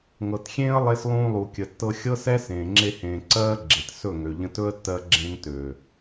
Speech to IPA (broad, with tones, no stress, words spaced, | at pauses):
ŋɤ˨txʲẽː˦ə̯lˠe˧s lˠũː˧lˠu˨kʲə˨tːɤ˧ xʲɤ˦sɛ˦ sẽː˨ŋ͡ǁe˧hẽː˨ ǀɜː˦ ɡ͡ǁe˨t sɵ˦˨ŋø˨ ʎə̃˧tɵ˦ə̯ tːɜ˧ɡ͡ǁẽ˧ŋ tø˨